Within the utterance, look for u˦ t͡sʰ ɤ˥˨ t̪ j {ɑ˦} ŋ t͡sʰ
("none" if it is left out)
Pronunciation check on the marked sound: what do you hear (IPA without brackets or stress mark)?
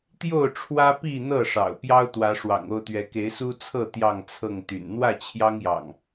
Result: ɑ˥˨